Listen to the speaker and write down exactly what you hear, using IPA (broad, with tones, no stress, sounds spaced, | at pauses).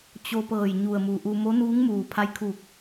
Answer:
t͡ɕ o˧ p ɤː˧˩ j ɲ u˧˩ ə̯ m u˩ ʔ u˧ m o˧˥ n uː˧˥ ŋ m uː˩ pʰ a˧ j kʰ u˧˩ k̚